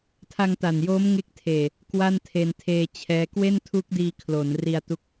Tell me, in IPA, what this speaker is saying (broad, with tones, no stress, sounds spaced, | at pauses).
tʰ a˧ ŋ t a˨˩ n j oː˦˥ m ŋ e˦˥ k̚ tʰ eː˨˩ | k w a˥˩ n tʰ e˧ n tʰ eː˧ t͡ɕʰ ɛː˦˥ k w e˥˩ n tʰ u˦˥ k̚ d iː˧ kʰ l o˩˦ n r i˧ a̯ t u˦˥ k̚